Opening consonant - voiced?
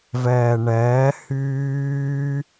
yes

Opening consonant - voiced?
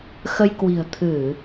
no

